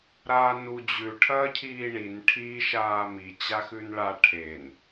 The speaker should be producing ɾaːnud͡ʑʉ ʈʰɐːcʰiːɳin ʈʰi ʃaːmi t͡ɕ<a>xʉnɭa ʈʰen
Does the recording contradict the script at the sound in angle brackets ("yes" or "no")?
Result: no